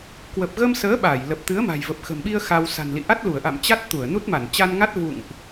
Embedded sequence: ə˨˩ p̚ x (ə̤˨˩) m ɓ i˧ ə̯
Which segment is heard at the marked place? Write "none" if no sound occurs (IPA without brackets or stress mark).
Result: ə̤˨˩